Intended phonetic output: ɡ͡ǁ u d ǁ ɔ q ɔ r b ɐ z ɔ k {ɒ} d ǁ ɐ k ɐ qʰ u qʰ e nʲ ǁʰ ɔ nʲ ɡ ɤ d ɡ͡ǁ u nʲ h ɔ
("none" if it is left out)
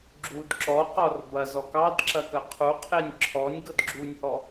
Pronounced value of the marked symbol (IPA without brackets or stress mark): ɑ